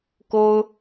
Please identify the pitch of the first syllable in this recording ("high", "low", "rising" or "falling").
high